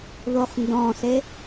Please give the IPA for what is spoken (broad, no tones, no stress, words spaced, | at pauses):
ðoχndɔ̃se